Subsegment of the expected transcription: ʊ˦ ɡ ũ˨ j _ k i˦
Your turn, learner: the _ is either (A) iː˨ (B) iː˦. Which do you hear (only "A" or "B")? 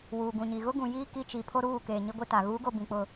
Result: B